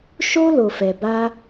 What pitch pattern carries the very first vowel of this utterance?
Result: high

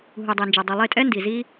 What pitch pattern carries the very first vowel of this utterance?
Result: low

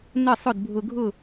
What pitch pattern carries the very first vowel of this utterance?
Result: falling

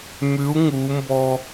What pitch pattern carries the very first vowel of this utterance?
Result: rising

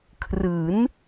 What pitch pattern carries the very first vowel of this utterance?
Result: rising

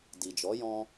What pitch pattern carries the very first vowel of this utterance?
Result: low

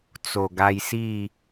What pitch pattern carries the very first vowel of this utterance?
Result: low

